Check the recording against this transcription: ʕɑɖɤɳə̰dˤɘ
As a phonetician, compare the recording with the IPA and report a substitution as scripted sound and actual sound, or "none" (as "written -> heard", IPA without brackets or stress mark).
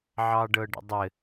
ɳ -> ɖ